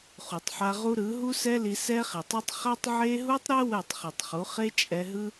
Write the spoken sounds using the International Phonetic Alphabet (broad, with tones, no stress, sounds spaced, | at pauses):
χ u˨ tˤ ħ a˧ ʁ u˦ ɾ ɯ˨˦ ɦ u˦ s ɛ˦ l i˧ s ɛ˦ χ i˨ tˤ i˦ tˤ χ a˦ tˤ ʕ e˦ ɦ u˦ tˤ ɾ ɛ˦ w ɛ˦˨ tˤ χ i˨ tˤ χ u˨˦ χ e˦ t͡ʃʼ ɛ˧ ɦ ɯ˦